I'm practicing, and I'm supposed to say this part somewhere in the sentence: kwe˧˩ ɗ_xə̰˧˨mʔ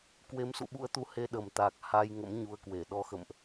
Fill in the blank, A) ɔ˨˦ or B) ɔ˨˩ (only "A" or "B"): A